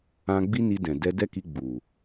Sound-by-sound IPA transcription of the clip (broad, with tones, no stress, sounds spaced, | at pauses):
ã˧ ɡ͡b i˦ n i˧ d ɛ̃˨ d ɛ˧ d ɛ˦ k i˧ ɡ͡b u˨